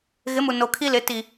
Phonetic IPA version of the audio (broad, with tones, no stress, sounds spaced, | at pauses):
ɣ ɪ˨˦ m u˨ n o˨ kʰ i˦ l ɪ˨˦ t i˨